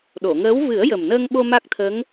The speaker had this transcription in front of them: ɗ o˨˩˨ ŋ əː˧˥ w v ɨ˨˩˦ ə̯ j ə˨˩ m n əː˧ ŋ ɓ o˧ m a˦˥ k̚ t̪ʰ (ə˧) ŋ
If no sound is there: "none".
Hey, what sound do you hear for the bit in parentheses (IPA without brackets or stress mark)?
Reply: ə˧˥